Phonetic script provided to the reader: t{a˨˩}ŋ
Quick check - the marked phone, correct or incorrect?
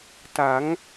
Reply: incorrect: a˩˦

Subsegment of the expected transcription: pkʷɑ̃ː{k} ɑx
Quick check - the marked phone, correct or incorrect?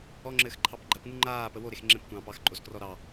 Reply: incorrect: p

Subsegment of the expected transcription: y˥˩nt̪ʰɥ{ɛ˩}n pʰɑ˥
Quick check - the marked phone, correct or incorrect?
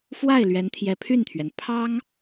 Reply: correct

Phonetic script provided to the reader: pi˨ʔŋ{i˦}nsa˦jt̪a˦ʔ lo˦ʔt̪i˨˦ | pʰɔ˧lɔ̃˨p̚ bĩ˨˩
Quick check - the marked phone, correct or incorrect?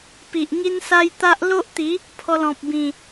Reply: correct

